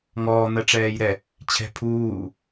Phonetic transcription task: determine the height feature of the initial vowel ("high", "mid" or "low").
mid